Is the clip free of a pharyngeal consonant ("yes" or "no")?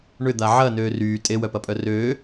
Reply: no